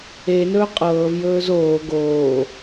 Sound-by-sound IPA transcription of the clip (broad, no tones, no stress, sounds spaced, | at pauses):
e n ɵː qʼ ɤː v j ɵː z oː ɡ oː